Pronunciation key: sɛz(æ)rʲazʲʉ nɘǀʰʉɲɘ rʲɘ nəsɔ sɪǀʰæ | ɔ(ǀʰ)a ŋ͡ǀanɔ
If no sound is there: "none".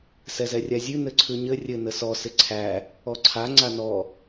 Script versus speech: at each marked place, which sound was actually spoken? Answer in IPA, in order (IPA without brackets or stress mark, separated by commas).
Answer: ɛ, ǀʰ